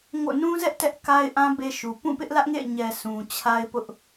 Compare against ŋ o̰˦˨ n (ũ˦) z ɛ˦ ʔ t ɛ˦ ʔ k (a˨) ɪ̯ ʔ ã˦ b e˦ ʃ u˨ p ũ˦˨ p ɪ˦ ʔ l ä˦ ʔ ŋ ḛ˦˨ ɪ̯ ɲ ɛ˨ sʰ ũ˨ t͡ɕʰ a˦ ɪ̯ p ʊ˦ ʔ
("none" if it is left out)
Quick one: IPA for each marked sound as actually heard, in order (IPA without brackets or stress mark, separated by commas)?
ũ˦, a˦